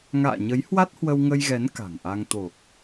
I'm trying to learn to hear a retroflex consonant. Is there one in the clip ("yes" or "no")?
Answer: no